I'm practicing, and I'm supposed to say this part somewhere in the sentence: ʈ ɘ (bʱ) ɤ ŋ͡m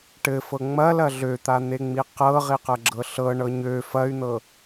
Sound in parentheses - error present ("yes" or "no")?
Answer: yes